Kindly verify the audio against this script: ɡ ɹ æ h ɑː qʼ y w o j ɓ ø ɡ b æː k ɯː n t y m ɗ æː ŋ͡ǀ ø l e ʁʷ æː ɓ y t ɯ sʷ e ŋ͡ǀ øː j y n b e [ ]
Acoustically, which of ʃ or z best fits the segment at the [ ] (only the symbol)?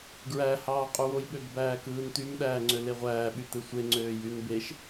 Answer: ʃ